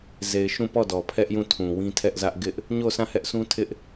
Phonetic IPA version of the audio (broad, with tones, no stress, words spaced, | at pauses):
ze˨ɪ̯ ʃũ˦˨pɔ˦˨dɔ˨ pʰɛ˦ʔjũ˦˨ tʰũ˨wĩ˦tʰɛ˦ʔzä˦ʔ ɡɪ˦ʔ | ɲo˦˨ sʰã˦˨hɛ˦ʔsũ˦ tʰɪ˦ʔ